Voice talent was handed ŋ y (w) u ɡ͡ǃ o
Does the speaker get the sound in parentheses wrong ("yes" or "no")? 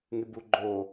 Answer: yes